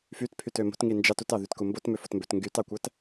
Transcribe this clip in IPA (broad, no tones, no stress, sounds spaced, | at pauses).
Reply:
f y t pʰ y t ø m o̤ t ŋ i n d͡ʒ ɑ t u t ɑ ð y t k u m b o t m ø f o t m b ø t ŋ ɡ y t ɑ kʷ æ t